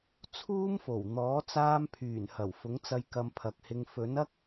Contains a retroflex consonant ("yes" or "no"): no